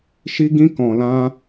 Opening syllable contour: high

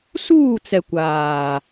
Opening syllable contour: falling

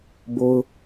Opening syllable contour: high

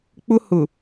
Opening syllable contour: high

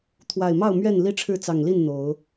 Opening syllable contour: low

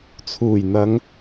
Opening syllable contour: low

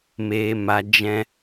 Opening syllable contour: high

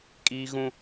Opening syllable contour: high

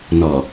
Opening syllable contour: low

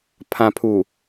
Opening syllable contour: low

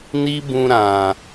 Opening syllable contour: high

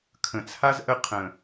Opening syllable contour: low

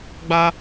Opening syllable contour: high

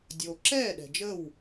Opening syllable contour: low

